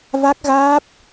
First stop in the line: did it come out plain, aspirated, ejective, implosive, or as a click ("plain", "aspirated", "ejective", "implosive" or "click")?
plain